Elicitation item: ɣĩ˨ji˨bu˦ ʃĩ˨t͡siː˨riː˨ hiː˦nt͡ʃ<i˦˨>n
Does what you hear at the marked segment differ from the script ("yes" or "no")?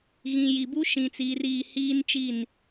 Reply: no